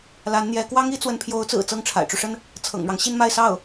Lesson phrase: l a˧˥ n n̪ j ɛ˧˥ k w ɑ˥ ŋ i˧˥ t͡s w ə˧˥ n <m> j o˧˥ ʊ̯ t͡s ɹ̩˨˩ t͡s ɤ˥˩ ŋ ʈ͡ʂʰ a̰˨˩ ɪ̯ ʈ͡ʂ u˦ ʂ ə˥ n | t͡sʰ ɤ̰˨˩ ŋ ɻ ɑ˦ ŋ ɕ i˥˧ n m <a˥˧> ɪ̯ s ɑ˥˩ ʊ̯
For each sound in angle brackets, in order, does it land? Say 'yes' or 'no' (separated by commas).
no, yes